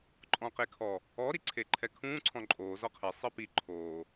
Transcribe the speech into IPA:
ǃʼ ɔ̃ q e kʰ ɔ | ɔ ɾ i ǀʰ e ǃʰ ɛ kʰ ũː ǀʰ ɔ̃ ǃʼ oː z ɔ qʰ e sˤ ɯ p i ǃʰ oː

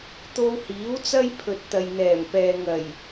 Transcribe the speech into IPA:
t̪ o˧ w h iː˨˥ w t͡s ɐ˥ j pʰ ɵ˨ t̚ t̪ ɐ˨ j n̪ ɛː˨˩ m p ɛː˨ ŋ ɐ˨˩ j

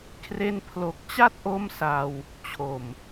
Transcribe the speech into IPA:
kʰ r e˧ n pʰ l o˨˩ k̚ t͡ɕ a˥˩ t̚ ʔ o˥˩ m s a˧ w | t͡ɕʰ o˨˩ m

